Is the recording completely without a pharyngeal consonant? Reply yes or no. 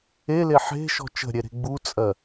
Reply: no